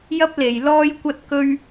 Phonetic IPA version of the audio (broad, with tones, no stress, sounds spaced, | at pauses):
j ɐ˥ p̚ l e˨ j l ɔː˥ j kʷ ɐ˥ t̚ k ɵ˥ ɥ